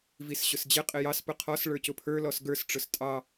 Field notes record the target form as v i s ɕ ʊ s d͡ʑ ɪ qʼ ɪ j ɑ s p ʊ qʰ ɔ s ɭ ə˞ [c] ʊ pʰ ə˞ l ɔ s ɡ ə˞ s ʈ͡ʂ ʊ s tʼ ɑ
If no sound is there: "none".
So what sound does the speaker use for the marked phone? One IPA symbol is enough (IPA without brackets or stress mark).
c